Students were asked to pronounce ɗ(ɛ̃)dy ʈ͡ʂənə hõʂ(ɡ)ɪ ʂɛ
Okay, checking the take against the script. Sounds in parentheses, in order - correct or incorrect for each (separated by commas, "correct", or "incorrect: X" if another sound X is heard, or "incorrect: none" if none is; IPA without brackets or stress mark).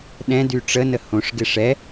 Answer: correct, correct